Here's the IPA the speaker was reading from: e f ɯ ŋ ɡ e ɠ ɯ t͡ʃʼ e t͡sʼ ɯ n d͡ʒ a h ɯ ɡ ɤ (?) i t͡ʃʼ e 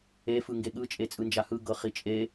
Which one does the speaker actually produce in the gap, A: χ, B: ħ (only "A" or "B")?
A